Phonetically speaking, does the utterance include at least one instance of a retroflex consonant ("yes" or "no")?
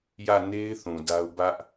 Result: no